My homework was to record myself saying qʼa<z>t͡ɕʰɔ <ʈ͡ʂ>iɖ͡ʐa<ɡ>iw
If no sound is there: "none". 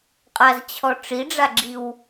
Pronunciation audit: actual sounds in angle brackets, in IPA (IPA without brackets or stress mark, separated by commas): z, ʈ͡ʂ, ɡ͡ǁ